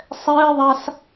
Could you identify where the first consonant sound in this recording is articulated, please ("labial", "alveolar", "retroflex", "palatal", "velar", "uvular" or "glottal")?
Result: alveolar